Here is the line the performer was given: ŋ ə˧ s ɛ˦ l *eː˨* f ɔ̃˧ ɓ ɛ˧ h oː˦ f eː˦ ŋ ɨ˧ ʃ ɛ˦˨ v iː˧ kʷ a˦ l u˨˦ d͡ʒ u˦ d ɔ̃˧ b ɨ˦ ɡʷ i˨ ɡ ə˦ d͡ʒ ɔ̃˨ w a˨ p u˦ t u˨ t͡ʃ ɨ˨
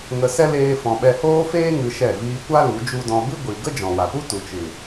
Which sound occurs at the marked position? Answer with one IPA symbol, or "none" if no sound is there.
eː˦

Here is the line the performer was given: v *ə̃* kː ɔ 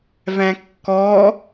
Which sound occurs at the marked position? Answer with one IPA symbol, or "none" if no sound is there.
æ̃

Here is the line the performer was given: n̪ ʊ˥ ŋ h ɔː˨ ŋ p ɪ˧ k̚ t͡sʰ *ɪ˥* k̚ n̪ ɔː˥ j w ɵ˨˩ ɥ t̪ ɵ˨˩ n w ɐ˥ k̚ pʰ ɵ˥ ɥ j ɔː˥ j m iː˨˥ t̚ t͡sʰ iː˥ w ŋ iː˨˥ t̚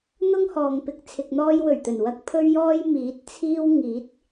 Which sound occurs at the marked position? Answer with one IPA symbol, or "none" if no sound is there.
ɪ˧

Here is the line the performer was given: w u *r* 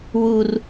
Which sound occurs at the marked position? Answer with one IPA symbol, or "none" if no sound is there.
r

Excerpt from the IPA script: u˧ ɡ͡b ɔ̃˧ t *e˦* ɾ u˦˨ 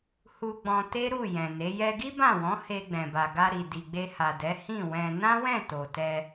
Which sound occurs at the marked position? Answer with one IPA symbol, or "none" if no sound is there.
e˦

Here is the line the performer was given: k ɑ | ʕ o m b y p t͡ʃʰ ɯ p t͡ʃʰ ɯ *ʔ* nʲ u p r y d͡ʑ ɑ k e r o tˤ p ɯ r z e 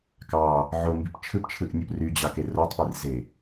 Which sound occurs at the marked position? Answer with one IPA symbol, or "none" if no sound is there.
ʔ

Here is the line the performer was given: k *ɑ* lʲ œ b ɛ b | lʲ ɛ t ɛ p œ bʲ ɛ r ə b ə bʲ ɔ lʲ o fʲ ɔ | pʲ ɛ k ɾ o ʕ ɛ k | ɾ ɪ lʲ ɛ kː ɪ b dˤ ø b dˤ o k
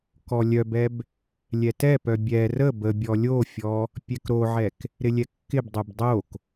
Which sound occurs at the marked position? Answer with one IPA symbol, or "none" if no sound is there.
ɔ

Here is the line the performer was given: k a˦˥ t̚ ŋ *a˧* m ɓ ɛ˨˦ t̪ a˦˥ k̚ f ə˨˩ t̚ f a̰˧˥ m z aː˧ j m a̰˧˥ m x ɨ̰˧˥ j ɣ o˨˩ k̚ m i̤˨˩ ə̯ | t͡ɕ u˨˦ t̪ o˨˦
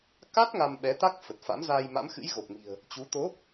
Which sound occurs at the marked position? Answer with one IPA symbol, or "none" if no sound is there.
a˧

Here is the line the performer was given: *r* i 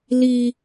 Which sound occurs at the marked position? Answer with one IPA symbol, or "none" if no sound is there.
l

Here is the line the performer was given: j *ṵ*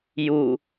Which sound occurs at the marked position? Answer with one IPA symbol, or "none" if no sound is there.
u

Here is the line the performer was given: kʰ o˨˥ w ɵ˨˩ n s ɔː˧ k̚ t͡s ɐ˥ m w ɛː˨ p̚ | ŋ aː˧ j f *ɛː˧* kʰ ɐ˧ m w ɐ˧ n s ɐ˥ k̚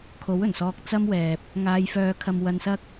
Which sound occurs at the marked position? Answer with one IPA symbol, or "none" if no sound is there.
œː˧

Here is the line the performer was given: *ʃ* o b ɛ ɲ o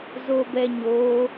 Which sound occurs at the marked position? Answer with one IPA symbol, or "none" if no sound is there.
z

